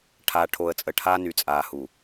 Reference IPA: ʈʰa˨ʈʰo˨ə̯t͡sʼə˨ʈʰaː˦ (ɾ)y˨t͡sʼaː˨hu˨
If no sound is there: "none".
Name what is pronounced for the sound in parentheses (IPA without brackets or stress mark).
n